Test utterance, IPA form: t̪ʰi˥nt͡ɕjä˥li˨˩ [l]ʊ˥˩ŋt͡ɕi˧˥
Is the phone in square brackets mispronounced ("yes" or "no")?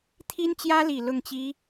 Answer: no